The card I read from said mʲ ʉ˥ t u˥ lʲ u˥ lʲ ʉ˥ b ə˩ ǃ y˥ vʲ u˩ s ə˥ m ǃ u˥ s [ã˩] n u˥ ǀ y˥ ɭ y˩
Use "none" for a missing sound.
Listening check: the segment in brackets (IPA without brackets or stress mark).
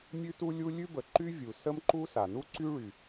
a˩